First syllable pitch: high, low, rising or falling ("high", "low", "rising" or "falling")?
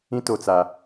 high